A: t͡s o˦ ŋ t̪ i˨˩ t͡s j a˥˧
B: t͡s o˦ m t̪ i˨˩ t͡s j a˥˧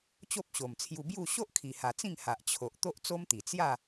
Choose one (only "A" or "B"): B